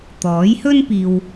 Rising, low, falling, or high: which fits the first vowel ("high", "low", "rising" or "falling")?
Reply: rising